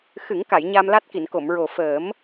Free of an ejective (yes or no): yes